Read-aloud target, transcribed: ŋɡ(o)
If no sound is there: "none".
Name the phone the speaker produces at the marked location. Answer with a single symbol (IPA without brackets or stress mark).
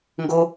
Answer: o